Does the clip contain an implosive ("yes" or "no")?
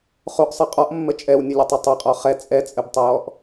no